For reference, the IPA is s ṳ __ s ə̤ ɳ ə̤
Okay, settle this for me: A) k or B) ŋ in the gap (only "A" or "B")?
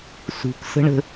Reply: A